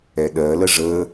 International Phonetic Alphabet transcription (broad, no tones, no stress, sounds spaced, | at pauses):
ɛ ɗ ɜ l ə ʐ əː